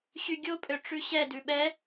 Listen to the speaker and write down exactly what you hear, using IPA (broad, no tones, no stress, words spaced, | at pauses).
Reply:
ɕyɡʲopʼø ʈ͡ʂʉɕɛdʉ ɓɛ